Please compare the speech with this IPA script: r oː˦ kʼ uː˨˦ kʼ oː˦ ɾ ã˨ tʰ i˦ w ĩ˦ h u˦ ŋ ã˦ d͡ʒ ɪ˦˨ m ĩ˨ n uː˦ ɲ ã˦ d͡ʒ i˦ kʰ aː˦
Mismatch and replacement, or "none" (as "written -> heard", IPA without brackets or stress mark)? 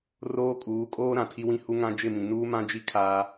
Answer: ɲ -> m